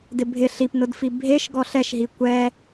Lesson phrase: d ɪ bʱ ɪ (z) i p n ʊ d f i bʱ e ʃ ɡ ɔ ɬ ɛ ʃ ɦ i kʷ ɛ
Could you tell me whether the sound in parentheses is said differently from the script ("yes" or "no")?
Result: yes